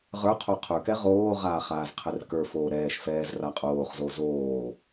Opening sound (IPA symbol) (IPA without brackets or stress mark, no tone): ʁ